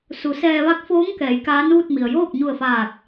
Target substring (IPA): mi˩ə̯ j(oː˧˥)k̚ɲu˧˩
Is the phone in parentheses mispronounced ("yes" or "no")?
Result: yes